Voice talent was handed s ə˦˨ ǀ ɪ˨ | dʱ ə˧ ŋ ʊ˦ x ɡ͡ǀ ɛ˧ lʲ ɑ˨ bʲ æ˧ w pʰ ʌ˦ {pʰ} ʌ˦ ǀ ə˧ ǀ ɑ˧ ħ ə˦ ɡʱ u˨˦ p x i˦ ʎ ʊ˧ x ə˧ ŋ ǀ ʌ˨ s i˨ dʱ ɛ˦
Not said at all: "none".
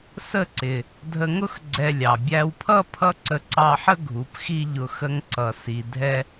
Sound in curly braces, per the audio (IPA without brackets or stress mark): pʰ